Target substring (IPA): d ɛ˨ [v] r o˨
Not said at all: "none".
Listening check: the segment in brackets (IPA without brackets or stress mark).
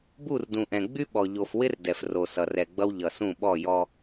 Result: f